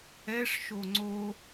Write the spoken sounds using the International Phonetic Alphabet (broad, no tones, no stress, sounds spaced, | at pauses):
ɛ ʂ ʃ o ŋ͡ǀ o